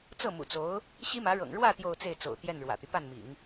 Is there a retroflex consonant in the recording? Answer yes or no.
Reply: yes